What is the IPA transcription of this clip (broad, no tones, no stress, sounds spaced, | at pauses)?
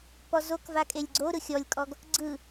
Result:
p ɔ z o k v a kʼ e lʲ ɡ͡ǀ o ɾ ɯ xʲ ɔ lʲ kʼ ɔ ɡ | ɡ͡ǀ ɯ